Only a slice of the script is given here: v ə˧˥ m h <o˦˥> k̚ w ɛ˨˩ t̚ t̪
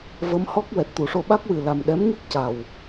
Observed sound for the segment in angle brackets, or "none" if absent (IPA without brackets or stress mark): ɔ˦˥